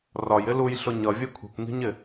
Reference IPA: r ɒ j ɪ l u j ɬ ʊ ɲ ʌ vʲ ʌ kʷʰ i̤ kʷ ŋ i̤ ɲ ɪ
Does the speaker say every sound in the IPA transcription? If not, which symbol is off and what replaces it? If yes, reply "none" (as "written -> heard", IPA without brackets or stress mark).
none